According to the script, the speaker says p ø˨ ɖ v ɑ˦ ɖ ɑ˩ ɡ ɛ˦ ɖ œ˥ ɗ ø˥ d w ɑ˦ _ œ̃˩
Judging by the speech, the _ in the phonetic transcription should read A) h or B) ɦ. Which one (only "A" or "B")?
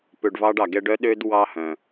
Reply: A